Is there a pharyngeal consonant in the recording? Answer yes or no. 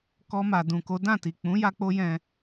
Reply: no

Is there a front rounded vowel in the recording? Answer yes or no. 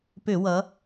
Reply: yes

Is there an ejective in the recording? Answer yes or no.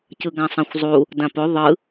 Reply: no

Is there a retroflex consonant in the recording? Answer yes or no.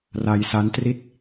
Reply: no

